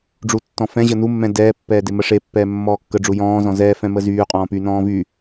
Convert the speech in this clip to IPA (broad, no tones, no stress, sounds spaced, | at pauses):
ɖ͡ʐ u tː ɔ̃ f ɛ̃ ʑ ə n u mː ɛ̃ d ɛː pː ɛː d e m ə ʂ e pː ɛː mː ɔː kː ə ɖ͡ʐ u j ɔ̃ː z ɔ̃ z ɛː f ɛ̃ m ə z yː qʼ ɔ̃ː p y n ɔ̃ː v y